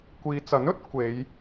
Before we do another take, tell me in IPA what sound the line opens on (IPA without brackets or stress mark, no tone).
kʷ